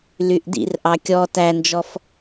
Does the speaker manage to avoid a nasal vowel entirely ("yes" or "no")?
yes